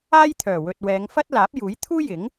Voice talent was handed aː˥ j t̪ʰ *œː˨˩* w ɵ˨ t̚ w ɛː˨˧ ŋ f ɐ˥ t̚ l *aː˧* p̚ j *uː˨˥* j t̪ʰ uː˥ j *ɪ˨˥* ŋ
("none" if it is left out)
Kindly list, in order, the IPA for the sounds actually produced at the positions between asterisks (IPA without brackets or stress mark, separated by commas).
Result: œː˨˩, aː˨˥, uː˨˥, ɪ˨˥